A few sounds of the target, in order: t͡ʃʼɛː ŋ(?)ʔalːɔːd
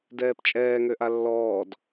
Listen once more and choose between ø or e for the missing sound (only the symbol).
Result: ø